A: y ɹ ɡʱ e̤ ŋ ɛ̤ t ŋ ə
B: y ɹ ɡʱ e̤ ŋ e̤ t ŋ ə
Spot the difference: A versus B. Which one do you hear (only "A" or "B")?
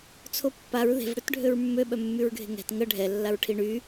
A